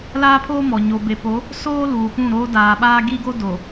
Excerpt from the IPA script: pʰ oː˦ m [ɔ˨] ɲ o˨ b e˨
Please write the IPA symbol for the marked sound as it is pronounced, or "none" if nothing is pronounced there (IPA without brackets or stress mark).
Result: ɔ˨